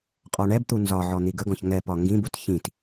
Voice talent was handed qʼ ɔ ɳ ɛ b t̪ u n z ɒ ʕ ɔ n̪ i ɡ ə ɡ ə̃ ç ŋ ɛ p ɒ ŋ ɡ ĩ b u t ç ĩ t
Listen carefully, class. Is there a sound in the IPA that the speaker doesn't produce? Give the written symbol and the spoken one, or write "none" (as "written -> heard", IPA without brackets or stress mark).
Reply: ə̃ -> ɔ̃